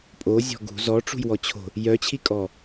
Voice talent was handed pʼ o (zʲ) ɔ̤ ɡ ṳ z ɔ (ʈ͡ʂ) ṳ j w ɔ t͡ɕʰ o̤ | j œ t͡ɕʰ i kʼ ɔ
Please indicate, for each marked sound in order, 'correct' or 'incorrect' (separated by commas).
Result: correct, correct